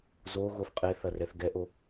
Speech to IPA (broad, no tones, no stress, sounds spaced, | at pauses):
z o ɣ o f qʼ e θ ɐ r ɛ θ ɡ ɛ ʔ o